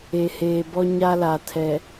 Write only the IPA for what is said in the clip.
e˨ h eː˨ b ɔ˦ ɲ a˦ l a˨ tʰ ɛ˨

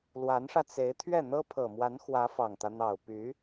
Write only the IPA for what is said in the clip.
l w a˧˥ n ʂ ä˧ t͡s e˧˥ ɪ̯ t̪ʰ ɥ ɛ˥˩ n̪ ɤ˥ pʰ ɤ˨˩ m w a˧˥ n x w ä˧˥ f ɑ˨˩ ŋ t̪ ä˦ n̪ ɑ˨˩ ʊ̯ p y˧˥

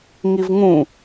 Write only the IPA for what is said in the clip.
ŋ i v ŋ ũ

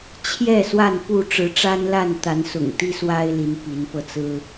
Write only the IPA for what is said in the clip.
t͡ɕʰ j ɛ˥˨ s w a˥˨ n p u˥˨ ʈ͡ʂ ɻ̩˨˦ ʈ͡ʂ a˦ n l a˥˨ n t̪ a˨˦ n s ʊ̰˨˩ ŋ t̪ i˦ s w a˦ ɪ̯ l i˨˦ n p i˨˦ n p ɤ˧ t͡s ɹ̩˦

